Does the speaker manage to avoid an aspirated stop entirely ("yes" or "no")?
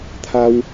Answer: no